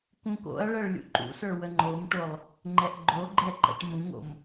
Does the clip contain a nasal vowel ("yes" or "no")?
yes